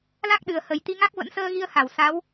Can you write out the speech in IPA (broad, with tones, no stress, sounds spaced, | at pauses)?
l a˦˥ k̚ ɗ ɨ˨˩ ə̯ h ə˨˩ j t̪ i˧ ŋ a˦˥ k̚ v ə̰˧˥ n s əː˧ ɣ i˧ ə̯ h a˧˩ w s a˨˦ w